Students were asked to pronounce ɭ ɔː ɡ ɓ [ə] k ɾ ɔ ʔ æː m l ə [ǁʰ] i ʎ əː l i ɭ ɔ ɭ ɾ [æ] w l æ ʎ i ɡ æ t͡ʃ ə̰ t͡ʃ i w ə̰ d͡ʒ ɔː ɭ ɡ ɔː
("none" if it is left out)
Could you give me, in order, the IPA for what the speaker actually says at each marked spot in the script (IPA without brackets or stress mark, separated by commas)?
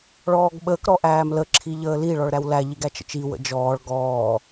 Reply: əː, ǁʰ, æ